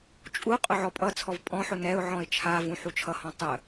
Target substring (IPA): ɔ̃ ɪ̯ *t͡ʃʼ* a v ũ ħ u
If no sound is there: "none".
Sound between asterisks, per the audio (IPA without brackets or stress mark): t͡ʃʰ